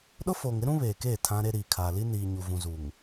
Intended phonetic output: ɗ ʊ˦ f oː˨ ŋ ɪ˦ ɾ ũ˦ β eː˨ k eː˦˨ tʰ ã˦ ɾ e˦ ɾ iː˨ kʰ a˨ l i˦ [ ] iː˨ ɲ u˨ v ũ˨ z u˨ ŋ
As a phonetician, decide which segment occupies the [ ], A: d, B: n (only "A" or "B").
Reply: B